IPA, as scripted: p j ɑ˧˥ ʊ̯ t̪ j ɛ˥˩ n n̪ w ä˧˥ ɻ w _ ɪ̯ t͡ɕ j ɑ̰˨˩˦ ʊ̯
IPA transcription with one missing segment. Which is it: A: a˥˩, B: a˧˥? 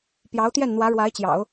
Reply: B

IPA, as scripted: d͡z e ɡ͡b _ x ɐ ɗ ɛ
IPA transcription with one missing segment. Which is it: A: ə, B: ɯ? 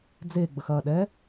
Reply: A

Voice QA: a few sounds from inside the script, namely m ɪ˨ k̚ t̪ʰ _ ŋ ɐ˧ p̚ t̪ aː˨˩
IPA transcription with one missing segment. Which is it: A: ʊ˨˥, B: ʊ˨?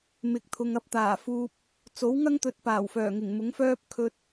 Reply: B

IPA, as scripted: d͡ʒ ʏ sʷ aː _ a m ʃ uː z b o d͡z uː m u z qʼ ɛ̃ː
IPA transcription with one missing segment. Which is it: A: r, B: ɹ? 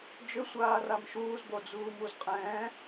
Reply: A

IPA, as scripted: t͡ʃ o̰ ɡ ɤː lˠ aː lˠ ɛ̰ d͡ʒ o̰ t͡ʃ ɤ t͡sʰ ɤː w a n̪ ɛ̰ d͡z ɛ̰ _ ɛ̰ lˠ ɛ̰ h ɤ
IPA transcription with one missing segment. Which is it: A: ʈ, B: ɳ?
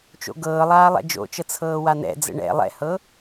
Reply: B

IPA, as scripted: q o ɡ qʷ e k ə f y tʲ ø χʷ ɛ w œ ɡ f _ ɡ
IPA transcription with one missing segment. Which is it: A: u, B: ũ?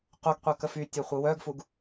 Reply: A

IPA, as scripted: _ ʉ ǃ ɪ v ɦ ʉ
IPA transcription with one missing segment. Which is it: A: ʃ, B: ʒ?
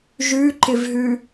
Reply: B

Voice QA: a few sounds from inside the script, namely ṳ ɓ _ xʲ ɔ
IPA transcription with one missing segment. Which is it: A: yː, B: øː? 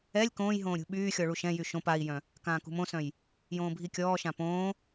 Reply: A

